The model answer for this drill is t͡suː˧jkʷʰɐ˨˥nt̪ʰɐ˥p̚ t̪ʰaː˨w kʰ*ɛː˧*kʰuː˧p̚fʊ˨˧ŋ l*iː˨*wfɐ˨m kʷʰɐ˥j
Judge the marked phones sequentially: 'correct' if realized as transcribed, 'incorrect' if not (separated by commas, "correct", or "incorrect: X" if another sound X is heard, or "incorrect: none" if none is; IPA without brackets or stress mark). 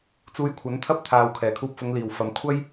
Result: incorrect: ɛː˨˩, incorrect: iː˨˩